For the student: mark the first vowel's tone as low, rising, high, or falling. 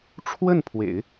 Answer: falling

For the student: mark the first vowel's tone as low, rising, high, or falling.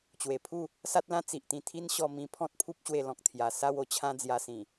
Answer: low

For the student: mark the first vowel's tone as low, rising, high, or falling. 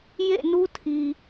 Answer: falling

